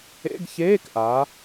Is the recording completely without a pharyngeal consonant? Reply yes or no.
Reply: yes